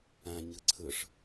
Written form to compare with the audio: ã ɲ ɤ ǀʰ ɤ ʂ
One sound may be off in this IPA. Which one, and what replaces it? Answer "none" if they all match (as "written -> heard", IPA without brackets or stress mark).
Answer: none